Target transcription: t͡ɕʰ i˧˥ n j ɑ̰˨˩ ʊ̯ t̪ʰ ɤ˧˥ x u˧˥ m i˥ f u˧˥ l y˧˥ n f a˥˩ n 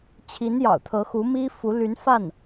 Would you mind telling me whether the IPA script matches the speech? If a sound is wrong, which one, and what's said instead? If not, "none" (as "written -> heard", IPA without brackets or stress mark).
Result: none